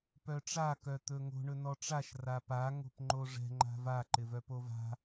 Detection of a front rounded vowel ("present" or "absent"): present